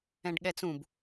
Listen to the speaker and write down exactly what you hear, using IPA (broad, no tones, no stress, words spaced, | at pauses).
ɛ̃ɖɠɛt͡sũb